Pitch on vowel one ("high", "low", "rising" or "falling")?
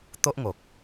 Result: high